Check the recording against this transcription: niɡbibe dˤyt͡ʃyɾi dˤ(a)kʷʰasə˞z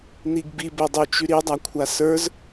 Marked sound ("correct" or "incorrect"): correct